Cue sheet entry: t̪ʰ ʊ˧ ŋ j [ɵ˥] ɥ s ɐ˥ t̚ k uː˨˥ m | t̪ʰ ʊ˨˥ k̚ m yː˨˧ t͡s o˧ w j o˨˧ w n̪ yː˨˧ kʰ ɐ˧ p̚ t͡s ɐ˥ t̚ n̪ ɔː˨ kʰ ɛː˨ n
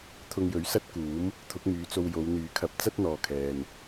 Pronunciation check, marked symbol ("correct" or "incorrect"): incorrect